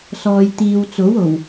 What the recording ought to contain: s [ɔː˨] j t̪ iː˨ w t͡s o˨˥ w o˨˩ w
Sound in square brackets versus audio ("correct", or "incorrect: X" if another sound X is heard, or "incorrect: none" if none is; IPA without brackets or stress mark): correct